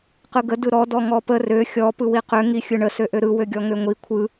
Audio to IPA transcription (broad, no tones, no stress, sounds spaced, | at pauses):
q ɯ ɡ ə d ɯ ɾ ɔ d ɔ ŋ ɔ p ə r ø xʲ ɔ p ɯ w i q ø ŋ i xʲ ɯ ɳ ə s ø ʔ ø ɾ ɯ w ø ɡʲ ɔ ŋ ø ŋʷ i kʷʰ ɯ